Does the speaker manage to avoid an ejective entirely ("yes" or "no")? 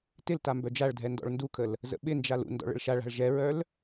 yes